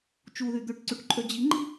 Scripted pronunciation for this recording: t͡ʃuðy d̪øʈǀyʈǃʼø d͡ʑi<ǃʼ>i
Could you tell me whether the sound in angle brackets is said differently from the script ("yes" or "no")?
yes